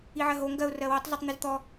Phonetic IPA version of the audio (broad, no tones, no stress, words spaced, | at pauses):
iʕɜɦo ŋɡɜʊ̯ rɜwɔtˤzɔtˤ n̪izt̪ɔ